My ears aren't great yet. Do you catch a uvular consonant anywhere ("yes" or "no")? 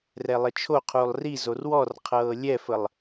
yes